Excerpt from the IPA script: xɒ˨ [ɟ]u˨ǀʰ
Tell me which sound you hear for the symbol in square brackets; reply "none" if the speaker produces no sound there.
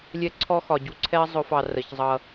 ɟ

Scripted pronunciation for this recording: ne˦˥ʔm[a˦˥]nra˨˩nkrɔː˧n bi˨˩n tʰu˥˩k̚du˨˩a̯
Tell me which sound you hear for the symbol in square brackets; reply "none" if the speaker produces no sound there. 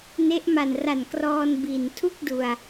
a˨˩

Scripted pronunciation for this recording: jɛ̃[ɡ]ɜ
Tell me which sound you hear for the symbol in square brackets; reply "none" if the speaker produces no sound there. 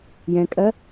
kʼ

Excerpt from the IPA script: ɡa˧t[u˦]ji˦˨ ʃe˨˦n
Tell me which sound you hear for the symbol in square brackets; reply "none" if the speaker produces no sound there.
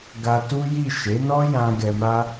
u˦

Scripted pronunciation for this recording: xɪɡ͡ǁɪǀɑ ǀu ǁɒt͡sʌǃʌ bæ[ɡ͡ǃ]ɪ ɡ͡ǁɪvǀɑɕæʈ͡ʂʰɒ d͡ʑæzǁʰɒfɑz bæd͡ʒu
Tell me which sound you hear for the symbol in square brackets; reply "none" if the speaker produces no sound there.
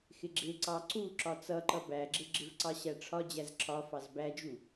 ɡ͡ǁ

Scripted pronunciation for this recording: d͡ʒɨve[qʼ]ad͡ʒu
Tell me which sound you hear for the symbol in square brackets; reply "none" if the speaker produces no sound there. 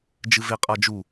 qʼ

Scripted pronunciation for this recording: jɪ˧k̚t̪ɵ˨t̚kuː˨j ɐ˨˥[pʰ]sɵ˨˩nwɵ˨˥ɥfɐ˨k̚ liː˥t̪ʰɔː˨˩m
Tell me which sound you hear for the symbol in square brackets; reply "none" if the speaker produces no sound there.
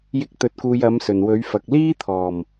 m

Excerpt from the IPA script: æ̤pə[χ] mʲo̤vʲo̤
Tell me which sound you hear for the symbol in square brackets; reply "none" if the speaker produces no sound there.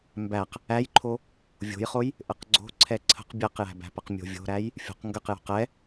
q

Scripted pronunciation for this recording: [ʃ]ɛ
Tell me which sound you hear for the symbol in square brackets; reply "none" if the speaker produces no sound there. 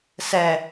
s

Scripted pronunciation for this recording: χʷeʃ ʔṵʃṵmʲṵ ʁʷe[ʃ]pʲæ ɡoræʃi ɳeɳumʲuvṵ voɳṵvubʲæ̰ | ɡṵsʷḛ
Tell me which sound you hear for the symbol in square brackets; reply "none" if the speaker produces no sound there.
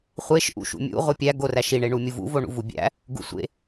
none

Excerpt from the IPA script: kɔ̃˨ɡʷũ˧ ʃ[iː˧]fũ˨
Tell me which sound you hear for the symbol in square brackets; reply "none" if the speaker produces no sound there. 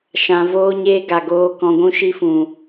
i˧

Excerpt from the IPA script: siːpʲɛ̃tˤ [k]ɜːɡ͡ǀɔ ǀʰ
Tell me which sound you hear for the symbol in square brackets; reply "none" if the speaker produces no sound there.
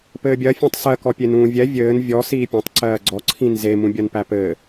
ǀ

